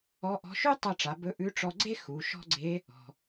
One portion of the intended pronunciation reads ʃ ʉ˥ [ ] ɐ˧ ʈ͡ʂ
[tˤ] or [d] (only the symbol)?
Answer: tˤ